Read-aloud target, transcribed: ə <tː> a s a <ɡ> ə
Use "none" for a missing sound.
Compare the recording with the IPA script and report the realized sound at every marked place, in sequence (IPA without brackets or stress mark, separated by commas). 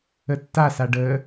tː, ɖ